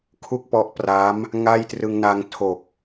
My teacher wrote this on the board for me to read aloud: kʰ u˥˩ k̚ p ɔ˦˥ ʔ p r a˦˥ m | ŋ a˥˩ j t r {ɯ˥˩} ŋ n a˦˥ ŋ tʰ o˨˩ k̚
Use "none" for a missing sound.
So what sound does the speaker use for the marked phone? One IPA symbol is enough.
ɯ˧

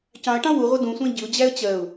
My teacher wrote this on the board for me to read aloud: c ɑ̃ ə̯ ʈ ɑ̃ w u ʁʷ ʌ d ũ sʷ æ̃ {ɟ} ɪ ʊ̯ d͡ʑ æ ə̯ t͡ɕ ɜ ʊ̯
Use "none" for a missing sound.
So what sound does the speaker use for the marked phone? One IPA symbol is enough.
ɟ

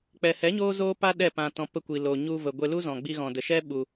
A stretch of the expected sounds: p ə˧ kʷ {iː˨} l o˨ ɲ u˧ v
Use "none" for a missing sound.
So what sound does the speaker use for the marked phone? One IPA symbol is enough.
i˨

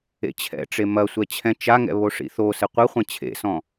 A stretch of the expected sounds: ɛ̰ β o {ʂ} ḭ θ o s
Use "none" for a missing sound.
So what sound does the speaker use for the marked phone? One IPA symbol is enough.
ʂ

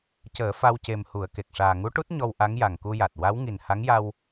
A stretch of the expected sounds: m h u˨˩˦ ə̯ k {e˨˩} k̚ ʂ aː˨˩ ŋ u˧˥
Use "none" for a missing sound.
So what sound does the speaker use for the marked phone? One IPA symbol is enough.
e˨˩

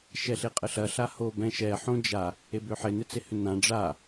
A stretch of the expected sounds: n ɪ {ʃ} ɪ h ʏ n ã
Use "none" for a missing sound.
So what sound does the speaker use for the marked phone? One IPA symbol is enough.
t͡s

